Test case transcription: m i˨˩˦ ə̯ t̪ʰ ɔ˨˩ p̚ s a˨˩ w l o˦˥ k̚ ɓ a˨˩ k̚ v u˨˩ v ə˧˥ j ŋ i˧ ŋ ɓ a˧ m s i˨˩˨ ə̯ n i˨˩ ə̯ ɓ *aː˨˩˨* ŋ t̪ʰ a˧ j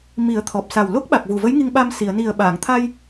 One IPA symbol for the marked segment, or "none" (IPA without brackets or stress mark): aː˨˩˨